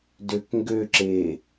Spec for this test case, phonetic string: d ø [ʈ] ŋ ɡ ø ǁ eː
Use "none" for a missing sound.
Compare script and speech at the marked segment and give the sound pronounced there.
k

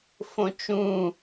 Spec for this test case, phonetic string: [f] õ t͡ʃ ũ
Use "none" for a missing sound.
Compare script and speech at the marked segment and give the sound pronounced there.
f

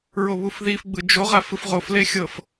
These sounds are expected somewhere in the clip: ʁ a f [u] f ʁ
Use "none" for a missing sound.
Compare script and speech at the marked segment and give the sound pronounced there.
ɯ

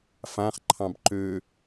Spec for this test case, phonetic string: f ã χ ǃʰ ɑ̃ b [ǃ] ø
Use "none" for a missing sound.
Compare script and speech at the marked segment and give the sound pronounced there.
ǃ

